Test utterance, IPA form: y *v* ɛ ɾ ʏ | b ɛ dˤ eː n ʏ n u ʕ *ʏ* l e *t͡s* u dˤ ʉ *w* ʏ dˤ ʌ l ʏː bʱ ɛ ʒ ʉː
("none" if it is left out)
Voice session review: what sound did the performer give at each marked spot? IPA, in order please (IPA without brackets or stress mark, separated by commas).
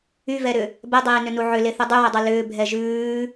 v, ʏ, θ, w